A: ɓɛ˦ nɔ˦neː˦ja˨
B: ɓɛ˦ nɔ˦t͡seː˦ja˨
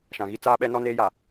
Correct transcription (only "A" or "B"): A